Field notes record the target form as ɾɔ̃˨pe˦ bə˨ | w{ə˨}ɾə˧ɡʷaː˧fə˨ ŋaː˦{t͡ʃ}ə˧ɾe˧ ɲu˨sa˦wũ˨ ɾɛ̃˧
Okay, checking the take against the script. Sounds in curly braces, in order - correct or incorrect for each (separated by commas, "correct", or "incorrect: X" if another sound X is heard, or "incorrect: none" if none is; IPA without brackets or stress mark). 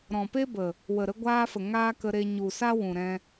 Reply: correct, incorrect: k